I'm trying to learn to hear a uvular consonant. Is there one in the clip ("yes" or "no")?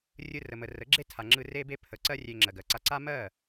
no